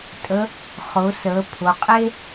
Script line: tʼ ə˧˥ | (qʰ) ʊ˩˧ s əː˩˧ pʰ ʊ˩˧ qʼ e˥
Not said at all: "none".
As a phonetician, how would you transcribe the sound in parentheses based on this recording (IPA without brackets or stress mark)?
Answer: χ